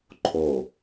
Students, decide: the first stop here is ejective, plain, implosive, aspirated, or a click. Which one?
click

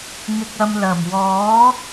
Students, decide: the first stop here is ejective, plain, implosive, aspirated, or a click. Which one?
plain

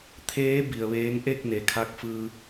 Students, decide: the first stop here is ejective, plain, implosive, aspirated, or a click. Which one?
aspirated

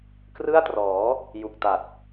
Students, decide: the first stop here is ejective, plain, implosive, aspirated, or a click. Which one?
plain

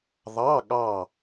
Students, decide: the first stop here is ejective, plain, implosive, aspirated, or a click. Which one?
implosive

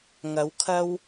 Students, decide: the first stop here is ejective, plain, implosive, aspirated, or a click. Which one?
aspirated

